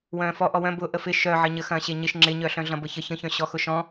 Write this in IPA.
wœ̃ːfɔ ʔɔwœ̃ bʊ ʔəfɪ ʃœʕəɲə xɐ̃ːɕeɲɪʃ ŋ͡ǁɪɲœɬœ̃ ɮɐ̃bəçə çə̃çœ̃ ɕɔxʊʃɔ̃

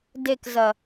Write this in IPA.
dekzɐ

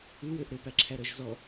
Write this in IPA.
ʉwøʔ ɾɵpæǁʰæɾœʒ zɔ

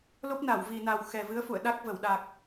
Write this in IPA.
lo˦˥p̚na˧˩wvi˨˩na˨˩w xɛ˨˩vɨ˨˦ə̯fṵ˧˨ə̯ ɗa˦˥k̚və˧˩wɗa˨˩k̚

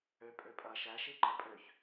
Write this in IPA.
ø pʼøpʼɐ ʃæʃi ǃɐpʼøç

